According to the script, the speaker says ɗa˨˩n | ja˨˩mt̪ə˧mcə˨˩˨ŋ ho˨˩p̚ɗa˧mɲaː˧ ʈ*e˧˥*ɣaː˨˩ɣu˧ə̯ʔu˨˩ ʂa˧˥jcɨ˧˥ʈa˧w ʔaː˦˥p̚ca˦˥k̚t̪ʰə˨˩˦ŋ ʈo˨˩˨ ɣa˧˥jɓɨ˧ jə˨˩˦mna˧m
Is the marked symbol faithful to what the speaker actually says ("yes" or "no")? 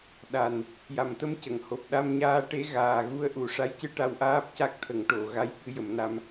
yes